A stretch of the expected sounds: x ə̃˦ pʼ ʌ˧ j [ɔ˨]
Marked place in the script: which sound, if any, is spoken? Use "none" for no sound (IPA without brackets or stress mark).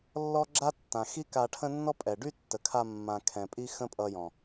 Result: ɔ̃˨